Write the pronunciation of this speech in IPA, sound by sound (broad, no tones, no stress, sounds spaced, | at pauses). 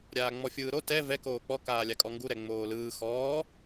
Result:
ɾʲ aː ŋ͡m ɔ fʲ ɯː ɾ o t ɛ v ɛ k oː k͡p ɔ k aː lʲ a kʼ ɔ ŋ ɡ u ɾ ɛ ŋ͡m oː l ɯː x ɔː